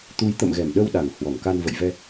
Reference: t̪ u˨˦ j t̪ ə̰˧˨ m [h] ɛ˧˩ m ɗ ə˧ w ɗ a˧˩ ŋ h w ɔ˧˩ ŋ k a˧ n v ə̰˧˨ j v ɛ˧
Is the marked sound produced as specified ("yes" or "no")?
no